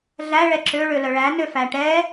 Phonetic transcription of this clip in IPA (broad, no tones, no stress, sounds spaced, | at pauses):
ɮ æ ɭ ɛ ǁ ø ɭ ø l œ ɭ æ n ø f æ ʈ ɛ